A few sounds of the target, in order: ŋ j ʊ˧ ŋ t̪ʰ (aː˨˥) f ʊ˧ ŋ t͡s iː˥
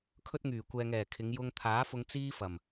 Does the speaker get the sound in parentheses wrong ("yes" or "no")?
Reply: no